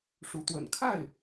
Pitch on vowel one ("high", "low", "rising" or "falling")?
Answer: rising